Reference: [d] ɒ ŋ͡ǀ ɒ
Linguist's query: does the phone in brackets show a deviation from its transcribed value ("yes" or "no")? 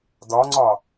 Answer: no